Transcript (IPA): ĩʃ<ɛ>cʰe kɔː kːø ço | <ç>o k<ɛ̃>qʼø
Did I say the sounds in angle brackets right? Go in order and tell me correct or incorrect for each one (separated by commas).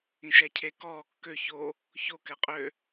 incorrect, correct, incorrect